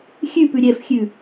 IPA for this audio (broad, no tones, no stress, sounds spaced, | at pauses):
xʲ ʉ p ʉ ɾʲ ɛ f xʲ ʉ